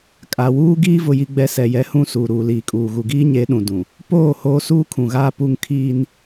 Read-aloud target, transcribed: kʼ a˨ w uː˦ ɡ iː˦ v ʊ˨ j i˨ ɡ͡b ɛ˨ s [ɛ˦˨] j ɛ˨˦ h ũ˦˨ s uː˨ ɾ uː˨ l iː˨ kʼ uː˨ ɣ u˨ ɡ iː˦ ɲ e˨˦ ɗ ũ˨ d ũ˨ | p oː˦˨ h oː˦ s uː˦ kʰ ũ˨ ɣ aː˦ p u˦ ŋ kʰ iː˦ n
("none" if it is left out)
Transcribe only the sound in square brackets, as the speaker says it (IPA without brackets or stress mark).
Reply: ɛ˨